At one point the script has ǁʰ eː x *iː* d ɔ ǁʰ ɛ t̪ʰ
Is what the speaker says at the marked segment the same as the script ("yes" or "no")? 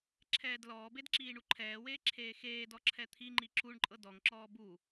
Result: no